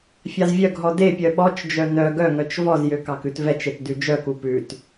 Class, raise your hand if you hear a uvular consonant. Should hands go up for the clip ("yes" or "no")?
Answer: no